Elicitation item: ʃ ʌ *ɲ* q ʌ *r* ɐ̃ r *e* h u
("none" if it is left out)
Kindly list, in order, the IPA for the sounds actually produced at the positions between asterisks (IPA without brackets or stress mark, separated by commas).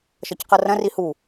c, r, i